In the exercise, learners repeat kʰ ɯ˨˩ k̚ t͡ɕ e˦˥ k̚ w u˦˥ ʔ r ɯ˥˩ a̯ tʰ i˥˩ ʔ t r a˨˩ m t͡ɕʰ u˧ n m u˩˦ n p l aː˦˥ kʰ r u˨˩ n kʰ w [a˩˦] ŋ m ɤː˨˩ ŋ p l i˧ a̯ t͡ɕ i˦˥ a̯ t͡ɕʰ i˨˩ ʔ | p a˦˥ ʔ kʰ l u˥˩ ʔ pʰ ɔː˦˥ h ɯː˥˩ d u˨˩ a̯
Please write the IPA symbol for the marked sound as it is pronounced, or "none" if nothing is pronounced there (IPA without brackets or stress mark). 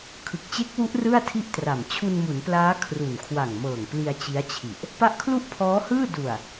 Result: a˨˩